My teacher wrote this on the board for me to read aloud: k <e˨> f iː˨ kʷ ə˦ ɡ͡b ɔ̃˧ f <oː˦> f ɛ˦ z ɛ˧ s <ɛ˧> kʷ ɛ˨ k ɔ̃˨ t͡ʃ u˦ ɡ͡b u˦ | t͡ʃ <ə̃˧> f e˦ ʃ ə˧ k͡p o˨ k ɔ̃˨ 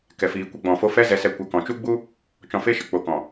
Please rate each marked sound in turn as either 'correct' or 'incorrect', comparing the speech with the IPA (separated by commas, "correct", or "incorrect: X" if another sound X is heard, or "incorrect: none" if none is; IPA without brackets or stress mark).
incorrect: ɛ˨, incorrect: o˦, correct, incorrect: ɔ̃˧